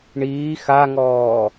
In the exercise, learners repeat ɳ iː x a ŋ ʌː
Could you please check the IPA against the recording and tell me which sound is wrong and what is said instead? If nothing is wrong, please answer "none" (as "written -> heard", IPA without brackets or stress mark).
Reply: ʌː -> ɔː